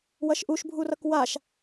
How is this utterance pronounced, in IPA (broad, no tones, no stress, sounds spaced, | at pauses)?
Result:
w ʌ ʃ ʔ u ʃ bʱ u r ʌ k w a ʃ